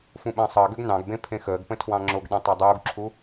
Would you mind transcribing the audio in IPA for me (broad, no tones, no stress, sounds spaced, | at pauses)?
f ũ ɓ ə̃ː sˤ əː ɡ ø ɡ n ɑ̃ ɡ b ẽ pʰ ẽ x əː ɡ p ə̃ tʰ w ɑ̃ ŋ͡ǁ o ɡ ɗ ẽ tˤ ɑ dˤ uː ɡ ǁʰ u